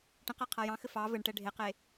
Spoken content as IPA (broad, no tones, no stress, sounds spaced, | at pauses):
ʈ ə̃ q æ qʰ a j ɑ̃ x ɘ f ɑ v ɘ ɳ ʈ ɛ ɖʱ e q e